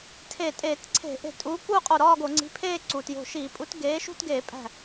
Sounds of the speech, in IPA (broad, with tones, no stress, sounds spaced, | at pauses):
tʰ e˧˩ tʼ eː˧˩˧ t ǀʰ e̤˧˩˧ ʔ e̤˧˩˧ tʼ uː˨˥ k uː˥˧ qʼ o˧˩ ɾ ɒː˥˧ ɡ o˧˩˧ ŋ͡ǀ i̤˨˥ pʰ eː˥˧ ǀ uː˩ t j o̤˧˩ ʃ iː˧˩˧ pʼ u˨˥ t ɡ eː˨˥ ʃ ṳ˥˧ t ɡ eː˧˩˧ pʼ æ̤˧˩